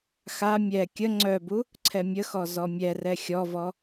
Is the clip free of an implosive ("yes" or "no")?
yes